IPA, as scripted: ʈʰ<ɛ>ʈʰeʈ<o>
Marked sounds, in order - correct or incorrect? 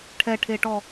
correct, incorrect

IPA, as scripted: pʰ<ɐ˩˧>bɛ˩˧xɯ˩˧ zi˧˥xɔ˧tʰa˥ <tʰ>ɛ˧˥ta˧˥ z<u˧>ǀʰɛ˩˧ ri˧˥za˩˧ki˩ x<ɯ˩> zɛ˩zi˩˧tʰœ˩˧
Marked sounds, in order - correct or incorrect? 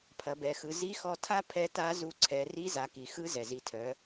correct, incorrect, correct, incorrect

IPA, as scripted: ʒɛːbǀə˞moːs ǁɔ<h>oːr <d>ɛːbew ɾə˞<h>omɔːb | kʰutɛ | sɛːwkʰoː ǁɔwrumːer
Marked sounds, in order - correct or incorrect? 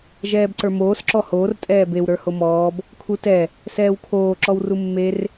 correct, incorrect, correct

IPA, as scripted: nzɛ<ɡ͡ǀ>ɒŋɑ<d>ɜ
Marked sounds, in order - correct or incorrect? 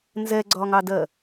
correct, correct

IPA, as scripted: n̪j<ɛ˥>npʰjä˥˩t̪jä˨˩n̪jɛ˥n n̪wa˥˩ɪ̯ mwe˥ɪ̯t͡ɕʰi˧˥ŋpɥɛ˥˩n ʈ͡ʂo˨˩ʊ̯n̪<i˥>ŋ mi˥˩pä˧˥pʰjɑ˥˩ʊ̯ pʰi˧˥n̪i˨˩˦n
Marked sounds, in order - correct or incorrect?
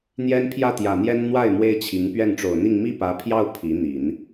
correct, incorrect

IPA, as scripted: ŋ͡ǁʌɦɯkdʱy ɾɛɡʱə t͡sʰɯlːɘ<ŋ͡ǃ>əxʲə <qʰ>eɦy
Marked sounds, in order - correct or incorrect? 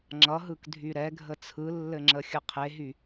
incorrect, correct

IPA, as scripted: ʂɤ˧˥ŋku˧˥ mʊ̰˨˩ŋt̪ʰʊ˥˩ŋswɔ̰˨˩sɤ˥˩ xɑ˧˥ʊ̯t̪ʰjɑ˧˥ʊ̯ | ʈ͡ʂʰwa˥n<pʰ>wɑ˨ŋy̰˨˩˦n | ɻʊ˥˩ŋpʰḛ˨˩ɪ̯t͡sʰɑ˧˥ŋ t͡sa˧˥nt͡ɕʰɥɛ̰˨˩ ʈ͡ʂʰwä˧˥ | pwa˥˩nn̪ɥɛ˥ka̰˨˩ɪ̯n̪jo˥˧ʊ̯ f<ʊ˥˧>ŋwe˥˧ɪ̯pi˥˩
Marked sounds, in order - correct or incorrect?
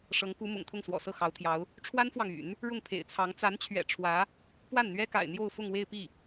incorrect, correct

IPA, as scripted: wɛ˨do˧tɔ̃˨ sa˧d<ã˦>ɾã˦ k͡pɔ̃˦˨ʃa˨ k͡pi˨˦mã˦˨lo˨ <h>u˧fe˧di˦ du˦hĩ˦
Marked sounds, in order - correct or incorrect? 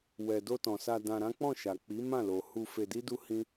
incorrect, correct

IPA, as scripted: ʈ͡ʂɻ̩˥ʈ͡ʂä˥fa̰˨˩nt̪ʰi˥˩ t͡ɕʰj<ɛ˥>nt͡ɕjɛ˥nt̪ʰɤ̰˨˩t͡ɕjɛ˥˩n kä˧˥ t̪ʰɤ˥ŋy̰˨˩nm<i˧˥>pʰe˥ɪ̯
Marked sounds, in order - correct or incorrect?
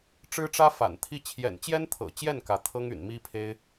incorrect, incorrect

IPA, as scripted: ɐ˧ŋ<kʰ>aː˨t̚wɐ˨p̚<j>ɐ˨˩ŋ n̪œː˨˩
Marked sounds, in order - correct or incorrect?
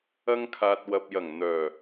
correct, correct

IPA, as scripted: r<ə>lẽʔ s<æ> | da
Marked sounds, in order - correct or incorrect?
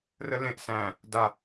correct, incorrect

